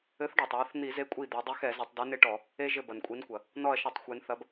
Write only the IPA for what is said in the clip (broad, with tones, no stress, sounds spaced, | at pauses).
ɘ˨˥ θ ɖ o˩ tˤ w ɘ˨˥ θ n̪ i˧˩˧ z e˨˥ kʷʼ i˧˩ d̪ ɛ˩˧ dˤ i˨˥ x ɛ˧˩˧ z ɘ˩˧ tˤ d ɛ˨˥ n e˦ ʈ ɔ˧˩˧ | e˦ ʒ ɘ˧˩ b ɐ˩ n kʷʼ i˨˥ n kʷ ɐ˩ | n ɔ˧˩ ɐ̯ ʃ ɐ˧˩˧ tˤ xʷ e˩˧ n θ ɐ˨˥ b